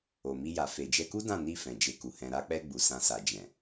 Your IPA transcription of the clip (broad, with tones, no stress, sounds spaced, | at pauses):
o˨ m i˧ j a˨ f e˨ d͡ʒ ɛ˧ k u˦ d ã˦˨ n i˧ f ɛ̃˨ d͡ʒ e˧ k u˨ h ɛ̃˧ ɾ a˧ k͡p ɛ˧ ɡ͡b u˨ s ã˧ s a˨ d͡ʒ ɛ̃˨